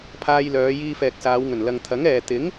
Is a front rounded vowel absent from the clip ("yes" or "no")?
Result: no